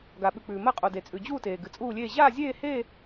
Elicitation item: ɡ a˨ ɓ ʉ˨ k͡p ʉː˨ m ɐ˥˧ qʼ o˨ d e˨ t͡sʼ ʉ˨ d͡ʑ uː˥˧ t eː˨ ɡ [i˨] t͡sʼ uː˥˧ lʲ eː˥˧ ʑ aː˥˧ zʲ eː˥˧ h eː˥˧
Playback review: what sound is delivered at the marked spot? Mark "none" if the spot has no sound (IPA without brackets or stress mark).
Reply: ɨ˨